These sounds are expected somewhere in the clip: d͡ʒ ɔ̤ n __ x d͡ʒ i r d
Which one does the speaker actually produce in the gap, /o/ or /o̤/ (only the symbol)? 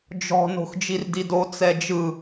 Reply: o̤